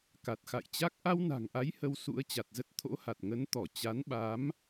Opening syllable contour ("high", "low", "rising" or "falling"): low